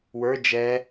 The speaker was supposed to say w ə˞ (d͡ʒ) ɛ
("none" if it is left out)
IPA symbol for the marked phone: d͡ʒ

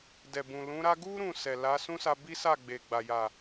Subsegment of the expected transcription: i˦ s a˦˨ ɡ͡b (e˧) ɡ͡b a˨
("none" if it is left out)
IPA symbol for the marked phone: e˨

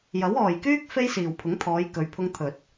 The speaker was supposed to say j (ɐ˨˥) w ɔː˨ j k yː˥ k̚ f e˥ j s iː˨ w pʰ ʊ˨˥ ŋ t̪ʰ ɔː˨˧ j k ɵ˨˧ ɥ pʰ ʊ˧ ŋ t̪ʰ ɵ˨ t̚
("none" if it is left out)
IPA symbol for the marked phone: ɐ˨˥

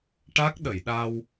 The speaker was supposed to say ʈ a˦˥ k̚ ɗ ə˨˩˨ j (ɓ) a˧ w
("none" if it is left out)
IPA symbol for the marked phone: ɗ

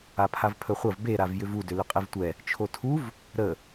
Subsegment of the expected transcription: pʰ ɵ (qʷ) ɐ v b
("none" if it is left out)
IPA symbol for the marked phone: χʷ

